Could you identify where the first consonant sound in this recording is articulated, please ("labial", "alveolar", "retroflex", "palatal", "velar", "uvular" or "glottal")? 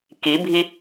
velar